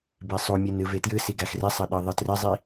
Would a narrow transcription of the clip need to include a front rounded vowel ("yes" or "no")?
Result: no